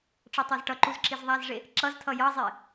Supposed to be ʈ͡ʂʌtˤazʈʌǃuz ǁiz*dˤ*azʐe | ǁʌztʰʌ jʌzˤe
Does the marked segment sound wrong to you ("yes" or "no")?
yes